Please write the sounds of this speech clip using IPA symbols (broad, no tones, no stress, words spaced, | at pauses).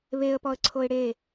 βeə̯pɔə̯ǀʰoɪ̯ ɽe